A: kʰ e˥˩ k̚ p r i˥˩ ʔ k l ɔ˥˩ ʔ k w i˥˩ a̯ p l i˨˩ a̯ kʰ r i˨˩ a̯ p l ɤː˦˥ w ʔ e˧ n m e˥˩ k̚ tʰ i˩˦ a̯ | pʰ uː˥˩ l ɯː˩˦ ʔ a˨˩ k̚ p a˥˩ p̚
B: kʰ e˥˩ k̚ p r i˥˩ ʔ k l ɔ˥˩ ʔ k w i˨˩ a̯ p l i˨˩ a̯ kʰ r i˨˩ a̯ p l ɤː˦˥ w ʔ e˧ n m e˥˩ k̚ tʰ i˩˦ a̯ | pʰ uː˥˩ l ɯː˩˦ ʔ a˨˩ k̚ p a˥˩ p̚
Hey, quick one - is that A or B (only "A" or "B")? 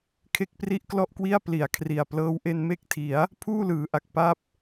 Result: A